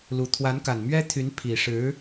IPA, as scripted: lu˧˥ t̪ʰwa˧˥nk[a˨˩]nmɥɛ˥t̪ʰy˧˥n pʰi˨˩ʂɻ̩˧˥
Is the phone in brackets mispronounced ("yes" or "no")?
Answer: no